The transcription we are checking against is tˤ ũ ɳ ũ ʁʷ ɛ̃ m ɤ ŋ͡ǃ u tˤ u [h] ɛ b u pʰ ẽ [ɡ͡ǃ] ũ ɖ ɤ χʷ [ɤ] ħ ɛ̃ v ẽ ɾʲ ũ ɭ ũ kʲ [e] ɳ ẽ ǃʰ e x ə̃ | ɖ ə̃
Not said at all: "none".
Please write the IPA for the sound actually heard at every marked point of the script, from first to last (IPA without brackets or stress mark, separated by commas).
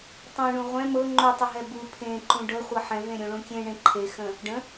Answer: ɦ, ǃ, ɤ, ẽ